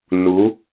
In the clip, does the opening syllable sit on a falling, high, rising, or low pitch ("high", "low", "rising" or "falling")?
rising